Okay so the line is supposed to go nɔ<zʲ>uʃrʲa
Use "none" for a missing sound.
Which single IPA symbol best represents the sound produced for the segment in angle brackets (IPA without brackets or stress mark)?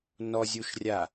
zʲ